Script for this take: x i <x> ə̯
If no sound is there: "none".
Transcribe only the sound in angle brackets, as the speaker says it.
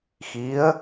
none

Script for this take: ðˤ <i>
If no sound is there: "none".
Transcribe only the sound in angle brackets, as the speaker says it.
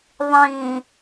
ĩ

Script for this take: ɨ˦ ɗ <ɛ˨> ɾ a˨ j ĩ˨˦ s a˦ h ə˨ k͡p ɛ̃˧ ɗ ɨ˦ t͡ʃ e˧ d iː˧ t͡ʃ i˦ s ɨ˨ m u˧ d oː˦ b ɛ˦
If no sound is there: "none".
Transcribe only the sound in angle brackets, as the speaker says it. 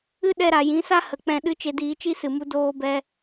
ɛ˧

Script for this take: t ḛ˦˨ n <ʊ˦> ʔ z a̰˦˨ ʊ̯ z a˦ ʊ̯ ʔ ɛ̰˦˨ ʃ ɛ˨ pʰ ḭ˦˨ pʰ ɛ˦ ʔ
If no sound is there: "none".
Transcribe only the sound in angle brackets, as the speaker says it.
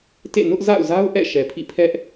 ʊ˦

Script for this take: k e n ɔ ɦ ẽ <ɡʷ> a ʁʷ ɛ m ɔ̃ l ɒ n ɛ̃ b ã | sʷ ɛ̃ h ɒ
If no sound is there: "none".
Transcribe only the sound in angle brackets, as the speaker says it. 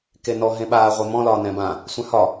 ɓ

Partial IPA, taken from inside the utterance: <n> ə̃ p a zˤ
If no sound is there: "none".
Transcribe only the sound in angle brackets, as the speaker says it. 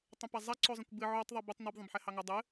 tˤ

